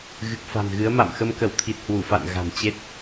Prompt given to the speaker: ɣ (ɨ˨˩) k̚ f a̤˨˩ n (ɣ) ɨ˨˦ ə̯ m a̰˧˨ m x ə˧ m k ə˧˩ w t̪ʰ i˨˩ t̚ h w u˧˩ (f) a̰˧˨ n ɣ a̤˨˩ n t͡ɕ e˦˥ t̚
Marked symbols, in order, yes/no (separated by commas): yes, yes, yes